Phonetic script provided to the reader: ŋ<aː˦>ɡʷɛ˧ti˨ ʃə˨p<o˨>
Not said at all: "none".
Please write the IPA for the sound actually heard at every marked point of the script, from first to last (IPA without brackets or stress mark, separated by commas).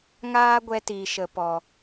aː˦, ɔ˨